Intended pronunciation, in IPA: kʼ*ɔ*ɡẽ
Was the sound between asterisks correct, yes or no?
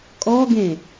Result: yes